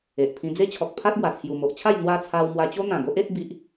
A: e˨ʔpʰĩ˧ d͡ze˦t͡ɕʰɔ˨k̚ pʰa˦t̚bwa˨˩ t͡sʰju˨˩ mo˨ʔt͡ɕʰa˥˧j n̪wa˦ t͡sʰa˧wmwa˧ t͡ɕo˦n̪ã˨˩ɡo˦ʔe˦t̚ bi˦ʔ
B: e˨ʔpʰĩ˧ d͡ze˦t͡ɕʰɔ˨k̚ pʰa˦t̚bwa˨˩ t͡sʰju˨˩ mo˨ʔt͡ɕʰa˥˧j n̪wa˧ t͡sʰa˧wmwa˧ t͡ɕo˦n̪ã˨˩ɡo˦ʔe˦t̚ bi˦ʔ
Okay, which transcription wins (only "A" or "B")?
A